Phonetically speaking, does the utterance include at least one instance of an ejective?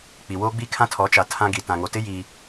no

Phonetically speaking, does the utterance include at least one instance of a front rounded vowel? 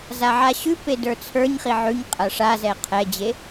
no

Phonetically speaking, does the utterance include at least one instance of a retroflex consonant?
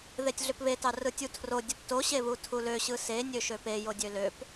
no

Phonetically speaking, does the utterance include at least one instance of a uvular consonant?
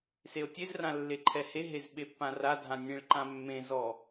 no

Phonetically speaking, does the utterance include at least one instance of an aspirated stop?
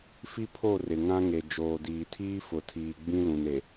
yes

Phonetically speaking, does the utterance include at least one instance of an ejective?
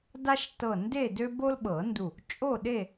yes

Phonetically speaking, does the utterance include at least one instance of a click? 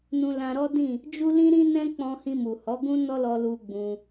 no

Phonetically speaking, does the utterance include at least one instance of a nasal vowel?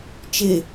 no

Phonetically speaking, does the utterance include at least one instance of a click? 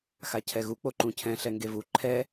yes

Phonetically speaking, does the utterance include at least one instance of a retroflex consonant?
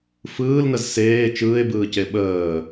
no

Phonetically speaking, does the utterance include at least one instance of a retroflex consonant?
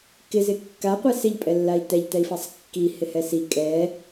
no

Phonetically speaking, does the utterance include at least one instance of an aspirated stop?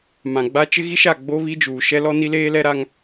no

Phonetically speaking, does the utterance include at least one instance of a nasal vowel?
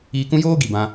yes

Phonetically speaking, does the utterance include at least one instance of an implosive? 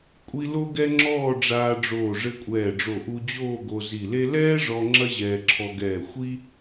no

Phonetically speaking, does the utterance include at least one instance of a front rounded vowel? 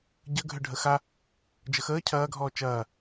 yes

